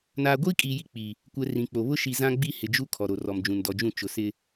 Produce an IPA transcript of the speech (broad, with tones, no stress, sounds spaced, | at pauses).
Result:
n aː˨ ɡʷ iː˦ kʼ iː˨ j i˦ k͡p i˨ | kʷ ɛ˨ r ĩ˨ k͡p o˨ β ʊ˦ ʃ i˨ z ã˦ ɡ͡b i˦ h ɪ˨ d͡ʒ u˦ kʰ ɔ˨ ɾ o˨ r ɔ˨ m d͡ʒ ũ˨ n d ɔ˨ d͡ʒ ũ˦˨ t͡ʃ ʊ˨ s ɪ˦